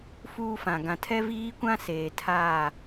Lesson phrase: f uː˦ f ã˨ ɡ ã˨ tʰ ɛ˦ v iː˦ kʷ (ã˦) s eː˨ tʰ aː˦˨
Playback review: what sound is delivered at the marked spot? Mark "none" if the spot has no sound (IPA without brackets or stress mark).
ã˦